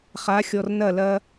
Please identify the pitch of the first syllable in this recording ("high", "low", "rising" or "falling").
rising